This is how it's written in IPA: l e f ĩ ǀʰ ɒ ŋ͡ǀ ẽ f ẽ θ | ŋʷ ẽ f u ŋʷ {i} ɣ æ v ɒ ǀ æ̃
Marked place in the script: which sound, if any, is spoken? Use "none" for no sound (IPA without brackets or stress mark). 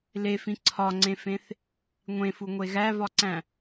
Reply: e